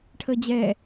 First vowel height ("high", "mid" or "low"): mid